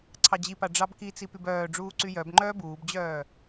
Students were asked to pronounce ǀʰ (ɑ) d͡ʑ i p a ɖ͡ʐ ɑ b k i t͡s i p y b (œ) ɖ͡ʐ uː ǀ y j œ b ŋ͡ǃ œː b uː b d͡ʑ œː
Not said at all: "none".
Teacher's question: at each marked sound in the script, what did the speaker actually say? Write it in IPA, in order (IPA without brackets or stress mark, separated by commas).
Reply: ɑ, œː